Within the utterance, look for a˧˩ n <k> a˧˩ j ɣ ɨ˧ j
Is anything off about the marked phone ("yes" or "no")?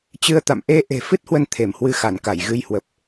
no